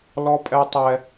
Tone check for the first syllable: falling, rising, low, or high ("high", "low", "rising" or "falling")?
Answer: high